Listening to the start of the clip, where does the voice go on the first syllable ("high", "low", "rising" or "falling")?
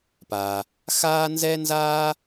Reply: low